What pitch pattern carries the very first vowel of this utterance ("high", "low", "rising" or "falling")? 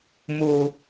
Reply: low